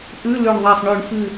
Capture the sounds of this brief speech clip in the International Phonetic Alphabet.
ʔ ʉ˧˥˧ l ʉ˧˩ ɳ ðˤ a˧˩ sˤ ɳ ʉ˧˩˧ ɳ f ɨ˧˩

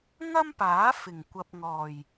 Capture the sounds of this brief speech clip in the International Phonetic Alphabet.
ŋ ɐ˥ m p aː˨˥ f ɪ˨˩ ŋ kʷ ɐ˨ p̚ ŋ ɔː˨˩ j

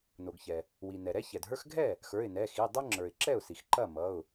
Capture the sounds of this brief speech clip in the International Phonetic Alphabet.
n o˩ ɡ ç ɛ˩ | w i˩ n ɛ˩ ɾ ɛ˦ ç ɛ˩ d ɦ ə˞˦ x ɡʱ ɛ˥˩ | x ə˞˩˧˩ ɪ̯ n ɛ˩˧˩ x i˩˧˩ dˤ ɐ˦ ŋ͡ǁ ə˞˩ ɪ̯ ǁ ɛ˥˩ ʊ̯ s i˩ x ǃ ɐ˥˩ m ʌ˩˧˩ ʊ̯

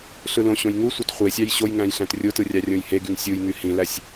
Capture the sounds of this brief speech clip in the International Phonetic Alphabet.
ɬ ɯ l õ ɕ õ j ŋ u sʷ ɑ t χʷ e sʲ ɑ j ɕ o j ŋ æ̃ j ɬ æ̃ t rʲ o t ɯ rʲ ɑ rʲ õ j h e ɡ y ŋ sʲ u j ŋ y h ĩ l æ sʲ

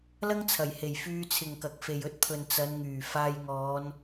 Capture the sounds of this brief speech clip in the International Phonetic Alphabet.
l ɐ˥ ŋ t͡sʰ ɐ˨˩ j h e˨˩ j f yː˧ t͡sʰ ɪ˨ ŋ k ɐ˨ k̚ f e˨ j ɵ˧ t̚ pʰ ɵ˨ n t͡s ɐ˨˧ n ŋ yː˨˩ f aː˧ j ŋ ɔː˨˧ n

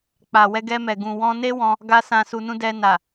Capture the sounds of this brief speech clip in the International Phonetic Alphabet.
k͡p a˨ w ɛ˧ ɡ ɛ˧ m ɛ˨ ɡ ũ˨ w ɔ̃˧ n e˦ w ɔ̃˧ | ɡ a˧ s ã˨ s u˨ n ũ˧ d ɛ˧ n a˨

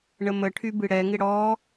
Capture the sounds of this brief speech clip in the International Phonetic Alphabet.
ɳ ə m ə ʈʰ y b ɨ ɽ ɛ ŋ ɪ ɽ ɔ

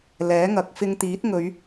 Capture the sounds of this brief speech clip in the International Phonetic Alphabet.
l ɛː˨˥ ŋ ɐ˨ k̚ f ɪ˧ ŋ t̪ iː˨˥ t̚ ŋ ɵ˨˧ ɥ

